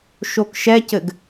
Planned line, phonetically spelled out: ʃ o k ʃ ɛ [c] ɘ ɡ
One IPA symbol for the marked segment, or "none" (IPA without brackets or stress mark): c